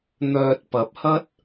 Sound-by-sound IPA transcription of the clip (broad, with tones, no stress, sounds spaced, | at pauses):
n̪ œː˨ t̚ p ɐ˨˥ p̚ h ɐ˥ t̚